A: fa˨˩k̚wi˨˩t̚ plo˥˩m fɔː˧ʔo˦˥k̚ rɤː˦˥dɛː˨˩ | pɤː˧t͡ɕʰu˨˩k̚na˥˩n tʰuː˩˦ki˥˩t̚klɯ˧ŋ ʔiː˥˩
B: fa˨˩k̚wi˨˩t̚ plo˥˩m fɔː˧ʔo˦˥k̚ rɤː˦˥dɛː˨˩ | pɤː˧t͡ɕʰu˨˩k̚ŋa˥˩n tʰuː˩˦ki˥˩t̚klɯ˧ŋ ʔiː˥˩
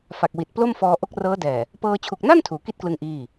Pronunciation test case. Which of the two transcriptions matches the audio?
A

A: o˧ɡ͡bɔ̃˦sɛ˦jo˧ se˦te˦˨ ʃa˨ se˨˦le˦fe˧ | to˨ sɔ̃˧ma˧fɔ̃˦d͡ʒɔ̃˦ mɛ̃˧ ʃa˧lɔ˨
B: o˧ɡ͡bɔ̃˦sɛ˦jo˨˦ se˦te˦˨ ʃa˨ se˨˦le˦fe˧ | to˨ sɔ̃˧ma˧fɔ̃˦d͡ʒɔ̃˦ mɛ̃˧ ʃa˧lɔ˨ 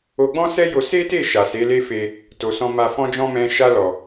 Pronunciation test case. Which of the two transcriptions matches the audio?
A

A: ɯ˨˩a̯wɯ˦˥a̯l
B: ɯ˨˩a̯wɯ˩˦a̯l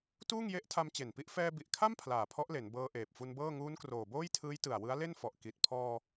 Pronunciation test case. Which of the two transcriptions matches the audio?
A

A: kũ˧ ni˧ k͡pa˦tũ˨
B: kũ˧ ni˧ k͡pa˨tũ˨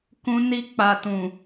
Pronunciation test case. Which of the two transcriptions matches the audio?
B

